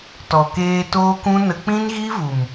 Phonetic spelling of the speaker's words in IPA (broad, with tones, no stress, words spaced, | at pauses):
tɔ˨ keː˧toː˦kũ˦ nə˧ k͡pĩ˦nɣi˦ vu˨m